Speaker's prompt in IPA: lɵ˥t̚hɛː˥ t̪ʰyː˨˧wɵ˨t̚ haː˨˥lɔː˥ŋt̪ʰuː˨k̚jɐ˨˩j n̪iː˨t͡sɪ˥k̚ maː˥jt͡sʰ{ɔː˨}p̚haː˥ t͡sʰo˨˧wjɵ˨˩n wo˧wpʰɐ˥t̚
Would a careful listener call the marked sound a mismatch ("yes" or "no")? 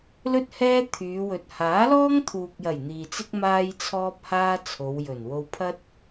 yes